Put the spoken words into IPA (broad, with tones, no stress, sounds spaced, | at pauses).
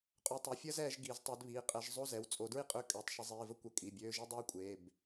qʼ ø˨˦ tˤ i˩˧˩ fʲ əː˥ z ɛː˨˦ ʒ ɡ i˨˩˦ z tˤ e˨˦ d β iː˩˧˩ qʼ ɛ˨˦ ʒ zˤ o˧˥˧ z ɛ˩˧˩ w t͡sʼ o˨˩˦ d ɹ i˥ qʼ ø˧˥˧ kʼ ø˩˧˩ tˤ ʃ ə˨˦ zˤ iː˩˧˩ v ə˥ kʷ ə˨˦ kʼ i˩˧˩ bʲ øː˧˥˧ ʒ i˥ dˤ ɛː˥ kʷʼ eː˩˧˩ b